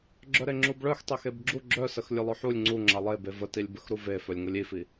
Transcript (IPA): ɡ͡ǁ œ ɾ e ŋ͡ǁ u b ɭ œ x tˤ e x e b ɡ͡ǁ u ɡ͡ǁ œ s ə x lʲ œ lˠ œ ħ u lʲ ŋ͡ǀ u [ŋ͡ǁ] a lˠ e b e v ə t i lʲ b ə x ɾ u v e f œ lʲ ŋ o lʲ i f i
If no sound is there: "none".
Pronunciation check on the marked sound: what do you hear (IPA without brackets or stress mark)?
ŋ͡ǁ